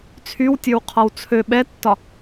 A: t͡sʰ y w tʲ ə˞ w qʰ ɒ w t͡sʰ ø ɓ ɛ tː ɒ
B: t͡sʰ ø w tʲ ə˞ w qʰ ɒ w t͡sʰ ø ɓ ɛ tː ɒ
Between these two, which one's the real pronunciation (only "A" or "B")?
A